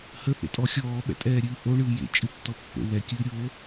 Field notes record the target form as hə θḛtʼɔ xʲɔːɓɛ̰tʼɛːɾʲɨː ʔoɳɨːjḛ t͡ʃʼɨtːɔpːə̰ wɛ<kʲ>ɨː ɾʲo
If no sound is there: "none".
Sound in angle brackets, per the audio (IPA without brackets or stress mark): kʲ